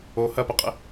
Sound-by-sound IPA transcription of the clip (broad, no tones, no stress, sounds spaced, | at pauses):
o h ɐ p ɐ qʼ ə̰